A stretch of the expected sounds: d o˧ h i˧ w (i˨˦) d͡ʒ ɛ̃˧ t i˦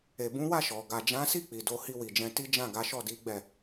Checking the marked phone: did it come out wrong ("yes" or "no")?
yes